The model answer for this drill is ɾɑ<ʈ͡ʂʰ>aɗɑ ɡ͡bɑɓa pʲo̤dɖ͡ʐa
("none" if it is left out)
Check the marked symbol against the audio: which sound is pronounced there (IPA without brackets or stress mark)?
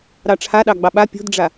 ʈ͡ʂʰ